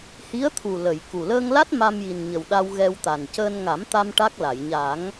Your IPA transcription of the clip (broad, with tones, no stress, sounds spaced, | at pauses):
h i˧˥ ə̯ t̪ʰ u˨˩ l ə˨˩˨ j k u˨˩ l əː˧ ŋ l a˦˥ t̚ m a˧ m j i˨˩ n ɲ ə˨˩ w ɗ a˧ w ɣ ɛ˧ w t̪ a˨˩ n c əː˧ n ŋ a˨˩˦ m t̪ a˧ m ʈ a˦˥ k̚ l a˨˩˨ j ɲ a˨˩˦ ŋ